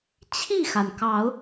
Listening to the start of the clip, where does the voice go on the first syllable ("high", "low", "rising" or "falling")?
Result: falling